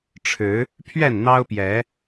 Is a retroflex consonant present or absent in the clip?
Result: present